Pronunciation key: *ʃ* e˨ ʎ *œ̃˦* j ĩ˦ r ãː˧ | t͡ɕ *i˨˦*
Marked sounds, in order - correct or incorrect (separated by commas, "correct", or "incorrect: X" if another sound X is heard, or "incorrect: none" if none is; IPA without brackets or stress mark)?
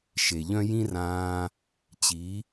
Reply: correct, correct, correct